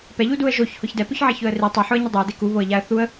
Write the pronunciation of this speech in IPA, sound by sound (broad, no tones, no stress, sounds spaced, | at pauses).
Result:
p ɛ ʎ u d u ə̯ ʒ o ç h ʊ ç d ɛ p ʊ ç ʕ e ç ʊ ə̯ r i tˤ o ħ ʊ ə̯ ɲ ɪ dˤ ɛ ə̯ d e k u β o ə̯ ʎ a ə̯ θ u ə̯